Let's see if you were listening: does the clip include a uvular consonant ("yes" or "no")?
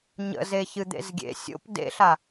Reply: no